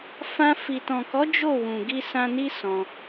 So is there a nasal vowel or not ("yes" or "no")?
yes